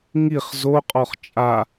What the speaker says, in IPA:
ŋiχ zoqʼɔχ t͡ʃʼa

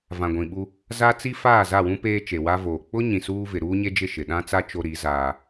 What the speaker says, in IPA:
vã˨ɡʷĩ˨ɓu˦ | za˦t͡si˦ faː˦˨za˦˨wũ˦ peː˦t͡ʃe˨wa˦voː˨ k͡pʊ˦ ɲĩ˨suː˦vɪ˨ ɾuː˦ɲe˦d͡ʒɪ˦˨ ʃɪ˨ɗã˦t͡sa˦ t͡ʃo˦ɾi˨˦zaː˦

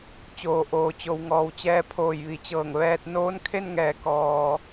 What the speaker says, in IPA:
t͡ɕoː˩ʔoː˩t͡ɕo˩˧w ŋɔː˩wt͡ɕɛː˧ pʰoː˧˩jʋi˩˧t͡ɕɤː˧˩ŋ ʋɛː˧t̚ noː˧˥nkʰe˥˨nŋɛː˩˧ kɔː˩

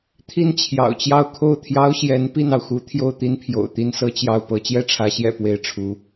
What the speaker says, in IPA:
t̪ʰi˥˩nt͡ɕʰjɑ̰˨˩ʊ̯t͡ɕjɑ˥˧ʊ̯ kʰo˥˩ʊ̯t̪ʰjɑ˥ʊ̯ ɕjɛ˧˥n pi˥˩nɑ˩ʊ̯xu˧˥ t̪ʰjo˥˩ʊ̯t̪i˥npʰjo̰˨˩ʊ̯t̪i˥n sɤ˥t͡ɕjɑ˥˩ʊ̯pɤ˥ t͡ɕjɛ˥˩ʈ͡ʂʰä˧˥ɕjɛ̰˨˩ pwe˥ɪ̯ʈ͡ʂʰu˧˥

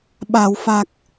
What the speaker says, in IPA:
ɓa˨˩˨w fa˨˩k̚

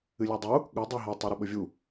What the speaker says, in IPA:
ɨlʲadˤu | ɠɵ dˤoɦa tˤɵɾɐɓɵvʲu

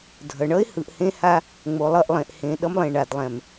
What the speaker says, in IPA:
dʱʌ˨ɳʌ˦ɪ̯ hɯ˨ʔhẽ˦ha˦ | ŋ͡mo˨lˠʌ˦˨ʔlˠẽ˨ʔhẽ˨ ɗʌ˦mlˠẽ˨ ɳa˨d lˠɛ̃˨m

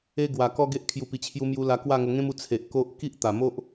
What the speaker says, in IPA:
e˧ ɡwa˨˩kɔ˦ɡe˦ʔ kʰju˨˩pi˨˩t͡ɕʰju˧mju˧ la˧kwa˥˧ŋo˧ ŋẽ˦mu˧ t͡sʰe˨ʔ ko˦ʔ ki˦ʔt̪a˨˩mo˦ʔ

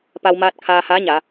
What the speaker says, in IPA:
pa˧wmaː˧t̚ kʰaː˧haː˧˥ɲa˩˧

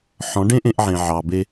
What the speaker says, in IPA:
ħɔ̃˨˦ɖẽ˦ʔẽ˧ʔ ʕẽ˨ʕɑ˨be˧

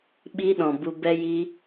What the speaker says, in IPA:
ɓi˧ɗɔ̃˨ bu˧ bɛ˧jiː˧

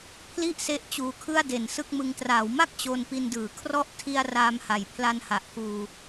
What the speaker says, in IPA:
pʰli˥˩ʔse˦˥ʔ t͡ɕuː˧kʰɯ˥˩a̯de˨˩n sɯ˥˩k̚mɯ˧ŋ traː˩˦wma˥˩k̚ t͡ɕo˧npi˧ndɯː˩˦ kʰrɔ˦˥ʔtʰi˧a̯ raː˧mha˨˩jpʰla˧nha˨˩ʔ kuː˧

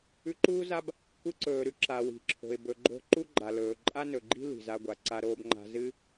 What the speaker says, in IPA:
ʉ˧ǃuː˥za˥b | kʷɨ˧ǀɵː˩ɾʉ˩ ǁa˩wi̤˩ǁʰo̤˩ɪ̯ bɵ˩ɡ͡ǃo̤˧ ǃu˥ɡ͡ǃa˩lɵː˩ ǃʼa˥nɵ˩ɡ͡ǃi̤˥ li̤˩za˧ ɡʷa˩ ǀa˧ ɾoː˧bŋ͡ǃa̤˧zɨ˥

